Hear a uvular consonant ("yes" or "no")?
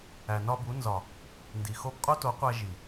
yes